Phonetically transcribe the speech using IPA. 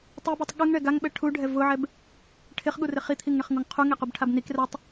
tˤibutˤ ɠuŋɳɛ ɡaŋɓɛ ʈʰuɖʱɛ vʊʕɛb | ʈʰɪχɠurɪ χit̪ʰiŋɳɪχŋuŋ qʰuŋequbʈʰab nik rɛtˤ

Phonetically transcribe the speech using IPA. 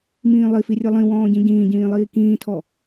mĩːlˠifi rʲɨlˠĩwɔ̃ː ɟĩɟĩːɟĩː lˠiːkĩːtʰɔ

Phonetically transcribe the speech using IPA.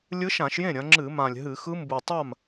lʲɯ˧˥ʃã˧˩˧ʃjẽ˥˩ ɾʲɐ̃˩˧ŋ͡ǁɨ˧˩˧mã˨˩lʲ ɦɨ˧˩˧xɯ˧˥mbu˨˩ tˤa˥˩m

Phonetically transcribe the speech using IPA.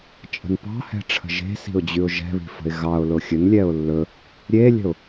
t͡ʃʼə̤npɑ̤hɛ̤ʈ͡ʂʰə̤ ʒe̤si̤ʊ̯d͡ʑʉʊ̯ ʒɛ̤βi̤fə̤ɪ̯ ɣɑʊ̯ lʊxʲɵn lʲɛʊ̯lːɵ | ɾʲelʲə̤ʊ̯

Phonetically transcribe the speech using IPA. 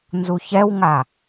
nzuçɛwŋa

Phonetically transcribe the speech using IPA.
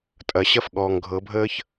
tʼɐ˨˩˦ɕɐ˥˧f ɠɔː˨ŋɡʱɤ˨˩˦bʱəː˥ç

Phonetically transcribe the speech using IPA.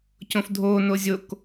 cõfdʱoː nozʲok

